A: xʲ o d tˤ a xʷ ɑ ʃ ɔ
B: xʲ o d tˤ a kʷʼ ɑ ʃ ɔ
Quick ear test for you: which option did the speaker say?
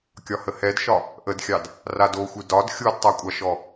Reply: B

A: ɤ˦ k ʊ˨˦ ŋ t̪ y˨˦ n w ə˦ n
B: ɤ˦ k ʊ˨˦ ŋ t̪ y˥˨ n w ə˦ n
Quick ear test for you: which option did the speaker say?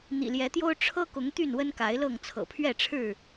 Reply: B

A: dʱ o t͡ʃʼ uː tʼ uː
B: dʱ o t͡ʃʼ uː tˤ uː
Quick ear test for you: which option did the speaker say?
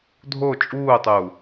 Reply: B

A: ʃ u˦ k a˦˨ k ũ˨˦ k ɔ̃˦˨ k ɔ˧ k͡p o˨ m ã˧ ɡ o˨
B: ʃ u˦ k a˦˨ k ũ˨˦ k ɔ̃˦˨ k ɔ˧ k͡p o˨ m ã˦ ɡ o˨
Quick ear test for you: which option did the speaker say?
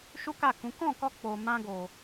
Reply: A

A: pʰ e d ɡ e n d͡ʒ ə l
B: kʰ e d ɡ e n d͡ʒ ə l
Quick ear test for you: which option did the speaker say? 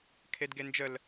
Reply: B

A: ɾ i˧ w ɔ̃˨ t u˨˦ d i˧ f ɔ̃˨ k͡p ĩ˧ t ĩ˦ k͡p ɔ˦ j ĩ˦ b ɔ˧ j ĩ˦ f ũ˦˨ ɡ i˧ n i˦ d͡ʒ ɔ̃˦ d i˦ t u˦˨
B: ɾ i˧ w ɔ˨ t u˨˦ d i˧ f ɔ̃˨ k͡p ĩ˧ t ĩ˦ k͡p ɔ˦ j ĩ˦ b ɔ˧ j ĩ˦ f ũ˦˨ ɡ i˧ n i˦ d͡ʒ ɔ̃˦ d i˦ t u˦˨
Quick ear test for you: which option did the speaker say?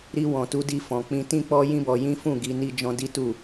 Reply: A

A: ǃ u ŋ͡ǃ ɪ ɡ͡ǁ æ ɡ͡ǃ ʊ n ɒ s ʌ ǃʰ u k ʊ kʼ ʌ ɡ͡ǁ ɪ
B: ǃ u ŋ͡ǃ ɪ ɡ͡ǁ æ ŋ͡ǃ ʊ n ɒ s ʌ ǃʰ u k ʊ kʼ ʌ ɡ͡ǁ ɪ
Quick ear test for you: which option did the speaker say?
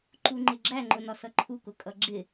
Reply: B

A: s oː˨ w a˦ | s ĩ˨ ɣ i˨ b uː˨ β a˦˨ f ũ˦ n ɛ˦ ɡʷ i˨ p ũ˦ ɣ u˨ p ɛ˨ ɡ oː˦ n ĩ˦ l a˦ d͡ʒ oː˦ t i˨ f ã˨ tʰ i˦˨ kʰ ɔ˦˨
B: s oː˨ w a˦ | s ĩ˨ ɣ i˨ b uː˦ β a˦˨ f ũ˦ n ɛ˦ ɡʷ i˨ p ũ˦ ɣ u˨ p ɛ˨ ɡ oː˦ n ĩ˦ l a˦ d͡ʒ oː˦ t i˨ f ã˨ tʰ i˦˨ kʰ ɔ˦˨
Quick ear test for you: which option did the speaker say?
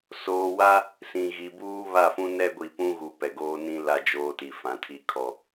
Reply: B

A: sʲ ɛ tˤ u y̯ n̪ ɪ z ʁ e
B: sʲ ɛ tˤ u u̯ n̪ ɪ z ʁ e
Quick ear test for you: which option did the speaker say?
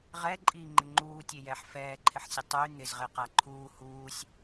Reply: A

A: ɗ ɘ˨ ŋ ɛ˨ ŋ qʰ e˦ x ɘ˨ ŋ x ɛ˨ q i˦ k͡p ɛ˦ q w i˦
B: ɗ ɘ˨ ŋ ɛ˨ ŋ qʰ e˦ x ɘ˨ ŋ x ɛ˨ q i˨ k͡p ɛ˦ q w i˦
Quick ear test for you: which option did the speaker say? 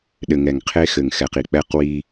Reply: B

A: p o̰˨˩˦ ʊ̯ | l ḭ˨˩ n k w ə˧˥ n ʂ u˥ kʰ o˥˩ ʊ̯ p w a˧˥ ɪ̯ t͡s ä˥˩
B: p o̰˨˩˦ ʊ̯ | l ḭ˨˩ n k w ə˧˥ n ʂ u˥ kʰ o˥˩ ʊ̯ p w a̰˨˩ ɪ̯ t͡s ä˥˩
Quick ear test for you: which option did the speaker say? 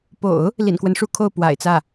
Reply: B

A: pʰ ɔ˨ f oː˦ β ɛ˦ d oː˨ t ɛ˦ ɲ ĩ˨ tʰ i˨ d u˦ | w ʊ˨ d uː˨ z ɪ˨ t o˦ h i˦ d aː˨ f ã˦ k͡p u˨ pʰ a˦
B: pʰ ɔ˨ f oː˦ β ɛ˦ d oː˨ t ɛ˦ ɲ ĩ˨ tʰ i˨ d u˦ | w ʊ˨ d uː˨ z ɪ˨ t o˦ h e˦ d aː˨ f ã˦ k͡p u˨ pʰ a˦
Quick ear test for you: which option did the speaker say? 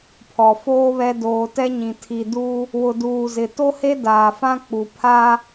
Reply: B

